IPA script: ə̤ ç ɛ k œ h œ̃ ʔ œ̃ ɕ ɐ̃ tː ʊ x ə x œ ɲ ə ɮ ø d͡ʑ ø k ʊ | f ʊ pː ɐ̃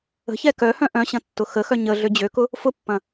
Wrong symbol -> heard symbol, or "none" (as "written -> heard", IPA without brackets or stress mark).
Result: none